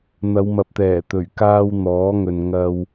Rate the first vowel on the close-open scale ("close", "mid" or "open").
open